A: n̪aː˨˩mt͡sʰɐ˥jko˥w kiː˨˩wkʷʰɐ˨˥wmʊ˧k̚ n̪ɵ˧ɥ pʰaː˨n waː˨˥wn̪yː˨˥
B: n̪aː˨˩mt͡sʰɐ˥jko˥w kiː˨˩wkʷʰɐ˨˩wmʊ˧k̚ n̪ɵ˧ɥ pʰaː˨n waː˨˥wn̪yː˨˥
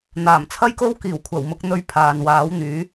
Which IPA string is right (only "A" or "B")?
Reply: B